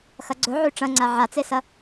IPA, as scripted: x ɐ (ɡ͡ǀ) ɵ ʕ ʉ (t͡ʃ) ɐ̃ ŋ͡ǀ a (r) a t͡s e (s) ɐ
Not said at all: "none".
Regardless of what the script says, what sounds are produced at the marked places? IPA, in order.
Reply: ɡ͡ǀ, ʈ͡ʂ, ʕ, s

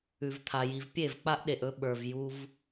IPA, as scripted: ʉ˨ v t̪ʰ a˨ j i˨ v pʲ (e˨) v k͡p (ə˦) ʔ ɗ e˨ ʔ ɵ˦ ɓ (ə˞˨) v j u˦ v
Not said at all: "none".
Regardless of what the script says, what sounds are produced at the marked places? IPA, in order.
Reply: e˦˨, a˦, ə˞˨

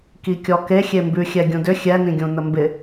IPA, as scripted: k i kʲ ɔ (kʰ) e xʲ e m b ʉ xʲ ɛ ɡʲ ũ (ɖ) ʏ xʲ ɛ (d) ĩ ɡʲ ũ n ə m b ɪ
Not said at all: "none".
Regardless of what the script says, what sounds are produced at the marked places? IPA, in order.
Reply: k, d, n

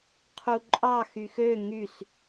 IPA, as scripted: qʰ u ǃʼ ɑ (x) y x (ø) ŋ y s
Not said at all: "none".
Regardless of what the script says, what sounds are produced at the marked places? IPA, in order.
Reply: x, ø

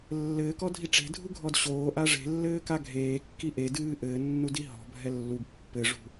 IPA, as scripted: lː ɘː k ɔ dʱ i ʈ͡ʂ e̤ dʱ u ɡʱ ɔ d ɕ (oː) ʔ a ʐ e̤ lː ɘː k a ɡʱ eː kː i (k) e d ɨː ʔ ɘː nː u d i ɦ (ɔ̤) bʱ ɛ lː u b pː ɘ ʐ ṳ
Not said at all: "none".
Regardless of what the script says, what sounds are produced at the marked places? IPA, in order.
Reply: oː, ʔ, ɔ̤

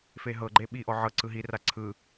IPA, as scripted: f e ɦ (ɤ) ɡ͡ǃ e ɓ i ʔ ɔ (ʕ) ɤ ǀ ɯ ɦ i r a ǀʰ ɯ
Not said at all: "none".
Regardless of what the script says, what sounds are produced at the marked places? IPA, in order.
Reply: ɤ, ʕ

